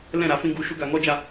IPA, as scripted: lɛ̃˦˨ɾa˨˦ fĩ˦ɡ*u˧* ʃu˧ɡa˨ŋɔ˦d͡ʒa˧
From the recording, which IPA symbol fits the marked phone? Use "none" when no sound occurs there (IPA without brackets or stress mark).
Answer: u˧